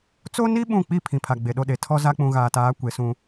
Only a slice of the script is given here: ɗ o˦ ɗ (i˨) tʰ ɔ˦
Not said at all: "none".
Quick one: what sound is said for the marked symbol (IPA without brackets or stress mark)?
e˨